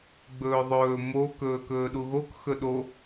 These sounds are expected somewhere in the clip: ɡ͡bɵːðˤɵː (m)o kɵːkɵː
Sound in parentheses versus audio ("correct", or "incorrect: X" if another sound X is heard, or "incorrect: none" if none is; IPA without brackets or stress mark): correct